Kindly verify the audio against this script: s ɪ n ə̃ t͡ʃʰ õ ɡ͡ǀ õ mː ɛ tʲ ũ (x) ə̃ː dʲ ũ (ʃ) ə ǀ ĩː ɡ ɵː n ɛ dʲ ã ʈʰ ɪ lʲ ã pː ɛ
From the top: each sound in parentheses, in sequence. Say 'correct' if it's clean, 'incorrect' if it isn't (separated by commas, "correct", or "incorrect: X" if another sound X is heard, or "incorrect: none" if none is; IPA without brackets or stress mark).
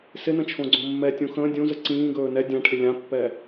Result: correct, incorrect: z